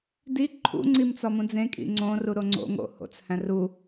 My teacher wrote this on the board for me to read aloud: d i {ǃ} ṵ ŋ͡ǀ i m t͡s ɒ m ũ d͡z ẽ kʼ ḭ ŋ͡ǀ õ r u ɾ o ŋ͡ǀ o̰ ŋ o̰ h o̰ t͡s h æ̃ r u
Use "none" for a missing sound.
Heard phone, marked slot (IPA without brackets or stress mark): ǃʰ